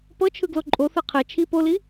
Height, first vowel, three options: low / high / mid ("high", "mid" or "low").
mid